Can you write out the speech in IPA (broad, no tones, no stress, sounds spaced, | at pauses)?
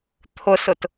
t̪ʰ ʊ s ʊ t